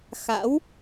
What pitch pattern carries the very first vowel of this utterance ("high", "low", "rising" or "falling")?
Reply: rising